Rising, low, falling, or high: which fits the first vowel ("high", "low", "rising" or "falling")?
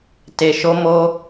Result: low